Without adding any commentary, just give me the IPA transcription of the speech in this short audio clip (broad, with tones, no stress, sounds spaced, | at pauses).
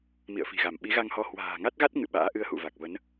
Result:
m ḭ˧˨ ə̯ f i̤˨˩ ɣ a˧˩ m ɓ i˨˦ ɣ a˧ ŋ h ɔ˧ h w a̤ː˨˩ ŋ a˦˥ t̚ ɣ a˦˥ t̚ ŋ ɨ̰˧˨ ɓ a̰ː˧˥ ʔ ɨ˧ ə̯ h ṵ˧˨ v a˨˩ k̚ v ə˨˦ n